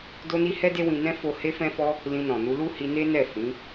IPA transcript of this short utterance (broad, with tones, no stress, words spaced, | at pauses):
do˧ni˧ hɛ˦de˦wĩ˧nɛ̃˦ fo˧ he˧fɛ̃˧fɔ˧ | lĩ˧nɔ̃˨ nu˧lu˦hi˧ne˦ nɛ˦˨ fĩ˨˦